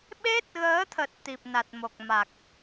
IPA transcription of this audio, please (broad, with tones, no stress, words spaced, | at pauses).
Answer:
ɓe˦˥t̚ɣəː˨˦t̪ʰə˨˩t̚ t̪i˨˩p̚ na˨˩t̚mo˨˩k̚ma˨˩k̚